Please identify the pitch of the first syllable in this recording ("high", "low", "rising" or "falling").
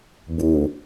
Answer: low